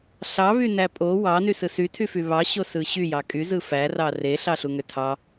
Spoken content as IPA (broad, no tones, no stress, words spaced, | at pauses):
ɬɑβynæ pʼo wɑnysɯ sytʰyfy βɑɕosɯ ɕyjɑ kʼyzɯ færɑ reɬɑɬuŋø tʰɑ